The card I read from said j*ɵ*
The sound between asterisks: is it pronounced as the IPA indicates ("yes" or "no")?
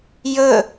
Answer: yes